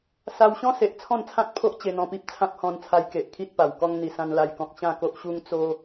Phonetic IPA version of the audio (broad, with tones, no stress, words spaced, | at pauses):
sa˧wɕɔ̃˦se˨ʔ t͡sʰɔ̃˥˧nt͡sʰã˦t̚pʰo˦ʔ t͡ɕe˧n̪ɔ̃˧pi˦p̚t͡sʰã˦p̚ hɔ̃˧nt͡sʰa˧jke˨ʔkʰi˦t̚ pa˨˩wkɔ˦ŋ n̪i˧sã˦nla˥˧jkɔ̃˦k̚ ɕã˥˧ko˦ʔɕu˦ŋ t͡so˦